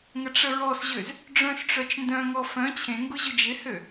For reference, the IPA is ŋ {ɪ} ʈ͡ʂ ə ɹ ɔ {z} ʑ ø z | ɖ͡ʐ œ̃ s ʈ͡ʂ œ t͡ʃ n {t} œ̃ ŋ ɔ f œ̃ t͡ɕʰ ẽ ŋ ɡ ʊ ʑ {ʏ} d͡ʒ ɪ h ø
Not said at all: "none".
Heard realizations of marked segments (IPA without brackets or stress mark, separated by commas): ə, s, d, ʏ